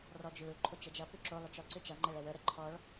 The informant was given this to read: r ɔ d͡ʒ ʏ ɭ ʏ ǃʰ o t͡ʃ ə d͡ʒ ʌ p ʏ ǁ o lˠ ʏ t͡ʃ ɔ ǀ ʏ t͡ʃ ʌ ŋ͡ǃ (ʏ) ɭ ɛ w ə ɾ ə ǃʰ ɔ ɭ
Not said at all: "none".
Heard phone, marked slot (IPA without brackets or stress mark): ɛ